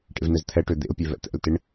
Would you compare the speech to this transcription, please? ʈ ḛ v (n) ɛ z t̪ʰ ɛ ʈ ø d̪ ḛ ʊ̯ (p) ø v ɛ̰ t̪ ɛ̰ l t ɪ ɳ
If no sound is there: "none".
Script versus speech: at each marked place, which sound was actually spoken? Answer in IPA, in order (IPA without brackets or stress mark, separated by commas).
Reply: n, pʲ